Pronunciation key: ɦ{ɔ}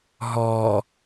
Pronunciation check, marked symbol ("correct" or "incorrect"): correct